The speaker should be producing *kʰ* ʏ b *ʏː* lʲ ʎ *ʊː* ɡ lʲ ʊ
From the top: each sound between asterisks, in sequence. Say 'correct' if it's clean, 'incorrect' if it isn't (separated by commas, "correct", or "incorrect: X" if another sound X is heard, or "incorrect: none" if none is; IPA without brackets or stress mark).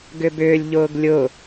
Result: incorrect: ɡ, correct, correct